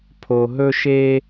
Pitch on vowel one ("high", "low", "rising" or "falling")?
low